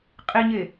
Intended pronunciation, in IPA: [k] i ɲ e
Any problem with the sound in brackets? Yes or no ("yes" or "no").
yes